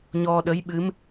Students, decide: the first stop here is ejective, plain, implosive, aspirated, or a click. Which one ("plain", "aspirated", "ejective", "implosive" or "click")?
implosive